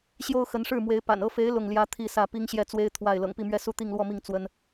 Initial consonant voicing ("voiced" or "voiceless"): voiceless